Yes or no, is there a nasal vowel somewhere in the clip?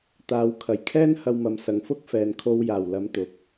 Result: no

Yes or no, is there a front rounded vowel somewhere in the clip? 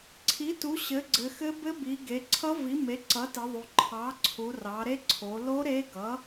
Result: no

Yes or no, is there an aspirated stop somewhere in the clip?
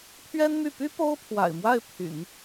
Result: yes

